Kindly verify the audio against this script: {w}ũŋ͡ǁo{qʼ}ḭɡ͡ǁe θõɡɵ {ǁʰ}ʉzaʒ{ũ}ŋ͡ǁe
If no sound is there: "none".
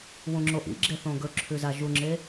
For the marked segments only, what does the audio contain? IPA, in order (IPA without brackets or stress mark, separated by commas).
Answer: w, ʔ, ǁʰ, u